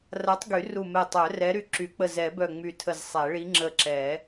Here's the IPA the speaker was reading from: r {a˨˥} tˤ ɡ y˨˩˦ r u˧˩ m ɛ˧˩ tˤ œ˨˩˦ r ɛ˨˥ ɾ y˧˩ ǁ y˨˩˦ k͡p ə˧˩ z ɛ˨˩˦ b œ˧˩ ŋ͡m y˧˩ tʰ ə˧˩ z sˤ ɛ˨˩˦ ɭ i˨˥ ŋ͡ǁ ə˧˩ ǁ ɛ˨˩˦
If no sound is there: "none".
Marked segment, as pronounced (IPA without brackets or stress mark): a˨˥